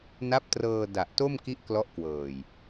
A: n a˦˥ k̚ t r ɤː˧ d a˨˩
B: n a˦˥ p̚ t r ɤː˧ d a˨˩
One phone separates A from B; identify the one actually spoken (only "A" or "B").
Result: B